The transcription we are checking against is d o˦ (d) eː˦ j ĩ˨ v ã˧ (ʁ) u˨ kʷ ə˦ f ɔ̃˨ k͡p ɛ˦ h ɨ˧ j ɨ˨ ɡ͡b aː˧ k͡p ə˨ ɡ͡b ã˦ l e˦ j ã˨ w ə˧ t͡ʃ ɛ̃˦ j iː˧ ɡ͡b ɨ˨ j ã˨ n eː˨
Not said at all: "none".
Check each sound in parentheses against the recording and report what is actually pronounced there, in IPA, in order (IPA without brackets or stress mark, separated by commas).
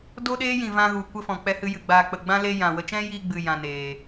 ɗ, ɣ